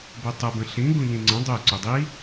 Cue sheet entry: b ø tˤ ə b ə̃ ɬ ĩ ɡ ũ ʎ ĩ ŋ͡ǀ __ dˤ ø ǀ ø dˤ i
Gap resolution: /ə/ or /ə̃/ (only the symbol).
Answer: ə̃